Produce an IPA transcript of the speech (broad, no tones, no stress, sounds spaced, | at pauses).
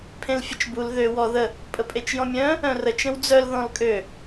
pʰ ẽ l fʲ ə t͡ʃ b u l ð ø w ɔ ð ə | pʼ ə pʼ e t͡ʃ j ɔ̃ mʲ œ̃ | œ̃ r ə t͡ʃ ə̃ w d͡z œ l ð ɔ̃ l kʼ ø